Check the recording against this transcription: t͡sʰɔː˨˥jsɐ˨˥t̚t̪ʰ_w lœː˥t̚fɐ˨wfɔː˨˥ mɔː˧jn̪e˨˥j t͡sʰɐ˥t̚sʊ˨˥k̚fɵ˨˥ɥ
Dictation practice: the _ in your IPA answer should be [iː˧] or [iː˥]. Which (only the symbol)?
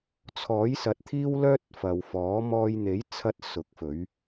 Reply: iː˥